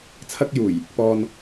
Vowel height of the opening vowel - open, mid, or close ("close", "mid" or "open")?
open